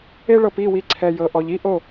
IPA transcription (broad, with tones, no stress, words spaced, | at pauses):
e˦ɭɤ˧p i˦˨wi˧ ǀʰɛ˨jɤ˨ʔɔ˨ʎi˦ ʔo˦˨